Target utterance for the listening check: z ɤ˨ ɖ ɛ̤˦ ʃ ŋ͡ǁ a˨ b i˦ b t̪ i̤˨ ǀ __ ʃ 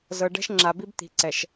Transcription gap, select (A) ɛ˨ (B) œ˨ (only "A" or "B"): A